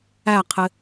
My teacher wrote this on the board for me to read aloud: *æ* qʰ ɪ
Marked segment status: correct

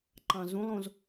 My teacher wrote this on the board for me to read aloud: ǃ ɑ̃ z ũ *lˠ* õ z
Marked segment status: correct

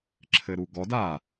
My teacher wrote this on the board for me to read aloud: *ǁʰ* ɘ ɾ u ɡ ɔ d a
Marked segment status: correct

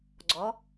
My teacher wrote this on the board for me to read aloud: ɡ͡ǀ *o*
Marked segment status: incorrect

